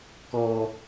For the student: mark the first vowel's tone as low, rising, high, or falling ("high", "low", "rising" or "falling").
high